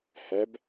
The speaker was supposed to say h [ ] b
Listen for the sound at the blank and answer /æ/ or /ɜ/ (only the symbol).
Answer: æ